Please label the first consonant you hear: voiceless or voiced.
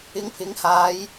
voiced